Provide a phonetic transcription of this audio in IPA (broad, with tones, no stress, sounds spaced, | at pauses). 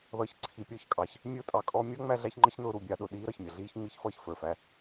ð ʌː˨ ç ǀʰ i˨ pʲ ɔ˦˨ ç kʼ ɑ˨ ç | mʲ ʊː˦ tʼ ɑ˨ kʼ ɔ˦ mʲ ʌ˦ ŋ͡m æ˦ ɮ æ˦ ç ŋ͡ǃ ə˦ ç n ʊː˦ ɾ u˨ bʲ ɑ˦ ɗ ʊ˨ ɗ iː˦ ɾ ʌ˨ ç mʲ ʌ˨ ɮ iː˦ ç ŋ͡m i˦ ç f ʌː˦ ç f ə˞˨ f æ˦